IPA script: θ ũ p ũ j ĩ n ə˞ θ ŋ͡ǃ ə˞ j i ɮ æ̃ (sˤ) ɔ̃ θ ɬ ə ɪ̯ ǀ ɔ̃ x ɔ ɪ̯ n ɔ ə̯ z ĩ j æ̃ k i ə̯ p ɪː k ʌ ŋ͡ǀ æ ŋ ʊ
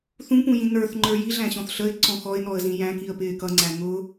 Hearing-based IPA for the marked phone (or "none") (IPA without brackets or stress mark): ɕ